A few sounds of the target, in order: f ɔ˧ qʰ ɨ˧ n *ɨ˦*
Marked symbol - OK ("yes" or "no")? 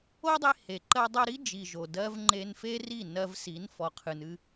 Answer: yes